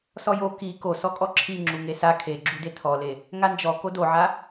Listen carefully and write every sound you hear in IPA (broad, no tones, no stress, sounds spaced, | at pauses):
s ɔ j o k i k o s ɔ kʼ ɔ ǁʰ i ŋ͡ǁ u ŋ e s a kʰ e ɡ͡ǁ u d e tʰ ɔ l e | ŋ a n d͡ʒ ɔ k o d o ʕ a